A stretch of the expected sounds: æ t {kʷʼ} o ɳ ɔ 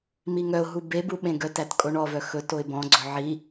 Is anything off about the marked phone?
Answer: yes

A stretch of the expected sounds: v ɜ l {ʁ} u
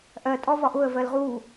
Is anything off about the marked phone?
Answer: no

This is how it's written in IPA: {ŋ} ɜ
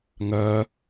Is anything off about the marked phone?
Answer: no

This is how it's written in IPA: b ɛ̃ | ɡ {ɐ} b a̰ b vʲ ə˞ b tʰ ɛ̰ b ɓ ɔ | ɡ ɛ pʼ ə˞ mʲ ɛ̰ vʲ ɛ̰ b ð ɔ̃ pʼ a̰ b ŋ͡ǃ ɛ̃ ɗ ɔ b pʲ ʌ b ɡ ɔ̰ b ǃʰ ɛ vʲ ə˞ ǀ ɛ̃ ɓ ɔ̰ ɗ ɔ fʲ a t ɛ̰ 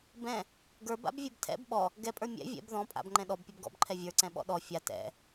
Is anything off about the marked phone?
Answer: yes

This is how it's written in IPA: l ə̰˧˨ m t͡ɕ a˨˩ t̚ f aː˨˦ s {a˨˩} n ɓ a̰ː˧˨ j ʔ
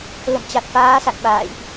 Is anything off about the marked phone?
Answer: yes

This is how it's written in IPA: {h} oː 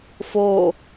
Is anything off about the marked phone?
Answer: yes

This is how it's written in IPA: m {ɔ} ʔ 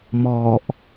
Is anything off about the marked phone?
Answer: no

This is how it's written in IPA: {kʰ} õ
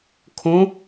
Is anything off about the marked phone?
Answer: no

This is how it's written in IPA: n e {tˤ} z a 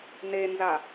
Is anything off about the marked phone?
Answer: yes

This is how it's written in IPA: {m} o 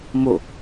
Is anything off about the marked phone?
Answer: no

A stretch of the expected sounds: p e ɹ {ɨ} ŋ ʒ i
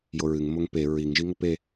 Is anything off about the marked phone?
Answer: yes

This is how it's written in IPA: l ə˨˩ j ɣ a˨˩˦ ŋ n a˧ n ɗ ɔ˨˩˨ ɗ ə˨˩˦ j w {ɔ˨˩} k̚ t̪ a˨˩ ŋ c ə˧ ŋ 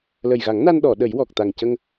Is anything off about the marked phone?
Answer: no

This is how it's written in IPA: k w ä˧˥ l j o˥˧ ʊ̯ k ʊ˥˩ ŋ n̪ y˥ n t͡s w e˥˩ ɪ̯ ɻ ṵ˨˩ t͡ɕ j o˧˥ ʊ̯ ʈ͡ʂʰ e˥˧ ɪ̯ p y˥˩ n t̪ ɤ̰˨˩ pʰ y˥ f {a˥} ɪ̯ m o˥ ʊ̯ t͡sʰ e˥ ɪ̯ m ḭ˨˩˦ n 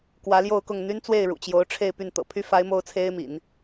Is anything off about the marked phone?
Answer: yes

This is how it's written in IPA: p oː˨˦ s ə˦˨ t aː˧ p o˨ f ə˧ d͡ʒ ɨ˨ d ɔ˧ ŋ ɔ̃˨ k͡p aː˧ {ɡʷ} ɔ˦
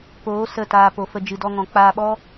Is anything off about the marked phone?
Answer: yes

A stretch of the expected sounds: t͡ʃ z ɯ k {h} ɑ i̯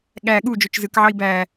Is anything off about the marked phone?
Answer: yes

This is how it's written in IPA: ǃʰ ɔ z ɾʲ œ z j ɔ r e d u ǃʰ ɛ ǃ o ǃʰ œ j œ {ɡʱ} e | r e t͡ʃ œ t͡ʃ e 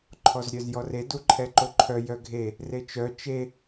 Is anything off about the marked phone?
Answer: no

